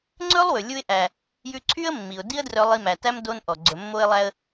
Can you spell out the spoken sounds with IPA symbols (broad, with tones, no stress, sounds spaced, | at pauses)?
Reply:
ŋ͡ǀ ɵ˦ lˠ w ɵ˨ lʲ u˧ ɪ̯ ʔ æ˨ | j ʉ˧ ǀʰ y˦ ə̯ mː i˨ ʊ̯ d i˦ ə̯ d r œ˧ lˠ i˧ m æ˨ t æ˦ m d o˧ n ʔ ɔ˨ ɡ͡ǀ ɵ˨ mː o˧ ɪ̯ lˠ æ˧ ə̯